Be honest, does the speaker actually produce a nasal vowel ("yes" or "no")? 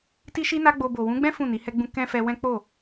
yes